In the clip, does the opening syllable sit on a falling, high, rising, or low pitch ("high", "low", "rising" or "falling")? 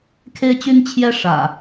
high